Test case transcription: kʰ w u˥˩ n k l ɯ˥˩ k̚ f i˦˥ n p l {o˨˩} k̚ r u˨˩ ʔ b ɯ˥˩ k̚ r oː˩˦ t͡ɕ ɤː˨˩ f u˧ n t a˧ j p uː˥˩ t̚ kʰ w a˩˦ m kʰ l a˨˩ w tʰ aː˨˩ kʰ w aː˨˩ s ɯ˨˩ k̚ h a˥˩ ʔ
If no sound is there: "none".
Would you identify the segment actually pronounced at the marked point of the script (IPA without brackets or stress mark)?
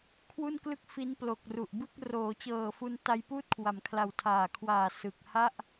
o˨˩